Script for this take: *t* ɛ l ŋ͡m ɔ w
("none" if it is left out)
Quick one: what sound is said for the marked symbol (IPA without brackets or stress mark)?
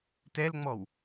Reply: t